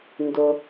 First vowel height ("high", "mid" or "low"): high